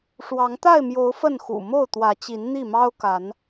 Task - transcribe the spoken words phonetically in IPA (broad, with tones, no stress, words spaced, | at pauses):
ʂwɑ˨˦ŋt̪a˥˨ɪ̯mjo˨˦ʊ̯ fə˥˨nxṵ˨˩ mo˥˨ʊ̯t̪wä˨˦t͡ɕi˨˦n n̪i˥˨mɑ˦ʊ̯ka˨˦n